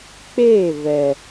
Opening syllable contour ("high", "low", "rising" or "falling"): falling